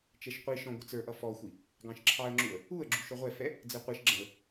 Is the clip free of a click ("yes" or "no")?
no